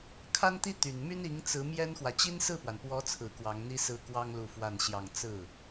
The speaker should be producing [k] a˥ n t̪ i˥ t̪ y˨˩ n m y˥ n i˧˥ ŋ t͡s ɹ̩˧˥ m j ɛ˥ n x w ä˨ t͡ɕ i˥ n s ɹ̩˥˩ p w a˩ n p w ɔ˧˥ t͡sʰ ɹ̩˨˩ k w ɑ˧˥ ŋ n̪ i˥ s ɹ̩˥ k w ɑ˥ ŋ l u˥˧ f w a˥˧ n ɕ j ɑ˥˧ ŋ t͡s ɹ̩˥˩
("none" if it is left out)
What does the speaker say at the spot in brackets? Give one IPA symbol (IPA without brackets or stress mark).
kʰ